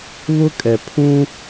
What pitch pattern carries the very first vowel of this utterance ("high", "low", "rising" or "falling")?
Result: high